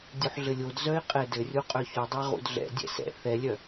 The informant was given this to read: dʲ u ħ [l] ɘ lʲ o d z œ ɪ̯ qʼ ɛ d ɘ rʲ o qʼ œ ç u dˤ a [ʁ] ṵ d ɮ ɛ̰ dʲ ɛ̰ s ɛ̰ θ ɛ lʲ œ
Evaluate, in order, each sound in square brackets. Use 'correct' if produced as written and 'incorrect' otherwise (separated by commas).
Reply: incorrect, correct